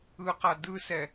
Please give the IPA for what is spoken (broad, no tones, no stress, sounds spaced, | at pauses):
ɯ q a d ɯ s ɛ